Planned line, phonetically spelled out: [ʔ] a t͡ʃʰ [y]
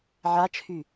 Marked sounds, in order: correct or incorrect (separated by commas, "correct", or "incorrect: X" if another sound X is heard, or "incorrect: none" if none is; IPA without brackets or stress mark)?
incorrect: ʕ, correct